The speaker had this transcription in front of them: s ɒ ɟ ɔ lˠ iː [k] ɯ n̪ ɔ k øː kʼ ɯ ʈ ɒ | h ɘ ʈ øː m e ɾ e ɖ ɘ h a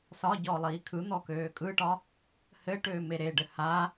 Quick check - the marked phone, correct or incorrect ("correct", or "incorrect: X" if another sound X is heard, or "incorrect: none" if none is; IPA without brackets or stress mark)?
incorrect: kʰ